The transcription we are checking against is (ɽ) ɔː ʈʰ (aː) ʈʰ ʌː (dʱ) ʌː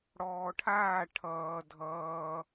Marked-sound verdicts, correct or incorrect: correct, correct, correct

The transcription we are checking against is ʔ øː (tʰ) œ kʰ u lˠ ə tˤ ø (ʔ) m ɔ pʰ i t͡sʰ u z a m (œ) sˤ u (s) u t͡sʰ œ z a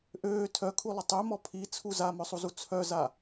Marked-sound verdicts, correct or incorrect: correct, incorrect: none, correct, incorrect: z

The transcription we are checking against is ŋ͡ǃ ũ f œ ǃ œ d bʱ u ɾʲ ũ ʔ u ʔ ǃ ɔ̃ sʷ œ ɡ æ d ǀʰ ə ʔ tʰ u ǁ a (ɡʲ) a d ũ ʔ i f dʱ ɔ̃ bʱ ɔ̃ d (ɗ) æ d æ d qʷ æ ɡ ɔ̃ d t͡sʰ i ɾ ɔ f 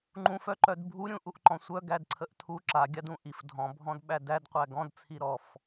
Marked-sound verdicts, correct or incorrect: correct, incorrect: ɓ

